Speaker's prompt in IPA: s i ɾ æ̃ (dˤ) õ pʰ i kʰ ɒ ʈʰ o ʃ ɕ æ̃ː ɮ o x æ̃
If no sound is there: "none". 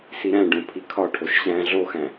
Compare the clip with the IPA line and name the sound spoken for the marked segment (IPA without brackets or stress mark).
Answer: ɖ